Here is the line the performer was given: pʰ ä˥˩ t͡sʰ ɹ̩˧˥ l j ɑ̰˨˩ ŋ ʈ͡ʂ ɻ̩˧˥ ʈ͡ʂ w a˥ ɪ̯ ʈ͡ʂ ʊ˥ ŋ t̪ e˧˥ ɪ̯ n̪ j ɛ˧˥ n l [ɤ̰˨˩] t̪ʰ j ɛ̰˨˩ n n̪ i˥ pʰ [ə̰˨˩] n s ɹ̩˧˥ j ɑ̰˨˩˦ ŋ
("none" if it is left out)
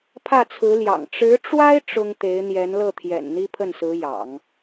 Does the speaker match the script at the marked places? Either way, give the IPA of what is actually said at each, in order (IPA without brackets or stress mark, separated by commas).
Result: ɤ˥˩, ə˥˩